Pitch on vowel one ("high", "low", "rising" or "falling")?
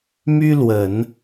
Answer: high